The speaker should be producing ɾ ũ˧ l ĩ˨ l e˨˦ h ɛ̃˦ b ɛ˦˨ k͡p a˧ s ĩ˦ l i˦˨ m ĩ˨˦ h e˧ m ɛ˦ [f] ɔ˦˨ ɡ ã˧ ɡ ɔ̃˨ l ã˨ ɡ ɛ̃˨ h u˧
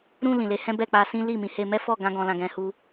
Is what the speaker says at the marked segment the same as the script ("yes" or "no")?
yes